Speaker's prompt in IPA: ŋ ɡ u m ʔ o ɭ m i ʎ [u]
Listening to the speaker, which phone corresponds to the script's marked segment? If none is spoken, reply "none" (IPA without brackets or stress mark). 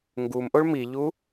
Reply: u